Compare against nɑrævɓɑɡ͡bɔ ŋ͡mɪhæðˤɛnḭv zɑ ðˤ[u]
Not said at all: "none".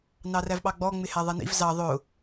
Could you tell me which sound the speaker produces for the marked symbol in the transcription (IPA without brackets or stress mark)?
ʊ